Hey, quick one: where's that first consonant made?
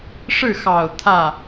retroflex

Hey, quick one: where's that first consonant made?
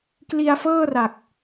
velum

